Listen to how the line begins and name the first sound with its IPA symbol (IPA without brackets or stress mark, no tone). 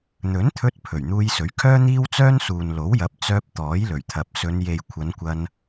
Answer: n̪